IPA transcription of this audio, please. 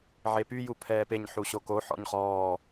ʕ e p y j u pʰ ɛː p e ɲ ħ u ɕ o k o ħ ɔ̰ ɲ χ ɔː

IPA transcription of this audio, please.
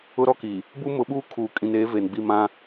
ʊ˦ ɾ ɔ˦ k i˨ | b u˦ m ʊ˨˦ ɓ uː˦ kʰ uː˨ kʼ ĩ˨ n eː˨˦ v eː˨ n ɡ͡b i˦˨ m ã˦

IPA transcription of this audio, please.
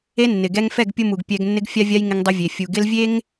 e˦ nː ɪ˨ ɡ ɛ˦ ŋ f ɛ˦˨ ɡ pʲ ʊ˦ m u˨ ɡ pʲ ɛ˦ ɡ nː ɪ˦ ɡ fʲ a˦ vʲ a˦ j ŋ ɪ˦ ŋ dˤ ʊ˦ vʲ e˨ fʲ u˨ ɡ ɪ˦ l vʲ e˦ ŋ

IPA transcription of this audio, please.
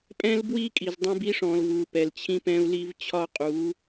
pʼ ɛ̃˦ l b w i˦ kʼ i˨ z dˤ ɛ̃˦ b i˦ ʂ ɔ̃˨ l v u˨ p ɛ˨ l t͡ɕʰ ĩ˦ p ɛ̃˦ u̯ l i˦ v t͡ɕʰ ɒ˦ qʼ u˨˦

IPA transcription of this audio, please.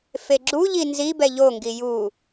f e ɡ͡ǁ u ʎ i n z i b ɛ ʎ o ŋ ɡ i j u

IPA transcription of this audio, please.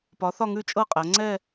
p ɒ˩˥ θ ɒ˥˧ ŋ ʉ˥˧ t͡ʃʼ ɤ˥˧ qʼ æ˩˧ ŋ͡ǀ ɛ˥˧

